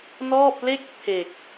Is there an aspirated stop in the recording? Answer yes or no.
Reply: yes